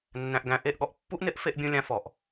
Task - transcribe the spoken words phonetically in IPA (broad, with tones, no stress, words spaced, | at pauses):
nːæ̃˨ʔɡæ̃˨ ʔe˦˨ʔɠɔ˧ʔ pːu˦ʔnɪ˦ʔ fe˧ʔbʲũ˧lʲã˧ fɔ˨ʔ